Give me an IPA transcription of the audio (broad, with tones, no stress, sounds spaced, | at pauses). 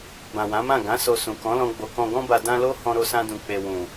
b ã˨ w ã˨˦ m ã˦˨ ɡ ã˨˦ s o˧ s ũ˨ k ɔ̃˨˦ l ɔ̃˧ ɡ͡b o˨ k ɔ̃˨ ɡ ɔ̃˧ b a˨ d ã˧ l o˦ h ɔ̃˧ ɾ o˧ s ã˧ d ũ˨ k͡p e˨ w ũ˨